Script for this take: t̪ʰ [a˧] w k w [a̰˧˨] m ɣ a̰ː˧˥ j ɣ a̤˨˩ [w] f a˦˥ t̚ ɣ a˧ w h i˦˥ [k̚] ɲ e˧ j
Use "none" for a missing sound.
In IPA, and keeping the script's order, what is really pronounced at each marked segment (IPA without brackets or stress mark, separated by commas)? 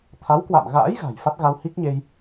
a˨˦, a̰˧˨, j, k̚